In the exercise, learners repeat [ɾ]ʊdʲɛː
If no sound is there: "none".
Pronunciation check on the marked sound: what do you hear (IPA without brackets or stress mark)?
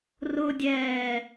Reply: r